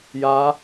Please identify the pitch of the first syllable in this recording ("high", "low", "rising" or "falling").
rising